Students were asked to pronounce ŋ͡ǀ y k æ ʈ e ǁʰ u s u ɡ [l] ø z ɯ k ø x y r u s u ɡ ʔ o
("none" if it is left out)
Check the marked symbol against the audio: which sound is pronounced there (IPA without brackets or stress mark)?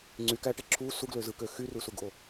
l